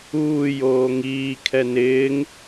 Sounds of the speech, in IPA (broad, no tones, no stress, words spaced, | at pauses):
uː joːŋiː kʰɛnɪːŋ